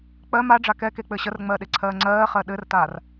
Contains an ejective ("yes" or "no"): no